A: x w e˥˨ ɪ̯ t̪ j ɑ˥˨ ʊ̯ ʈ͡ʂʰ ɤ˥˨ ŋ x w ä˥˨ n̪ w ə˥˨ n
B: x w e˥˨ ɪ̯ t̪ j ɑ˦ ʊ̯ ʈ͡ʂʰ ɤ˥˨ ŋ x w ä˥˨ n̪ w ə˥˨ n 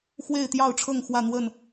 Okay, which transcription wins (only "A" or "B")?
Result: A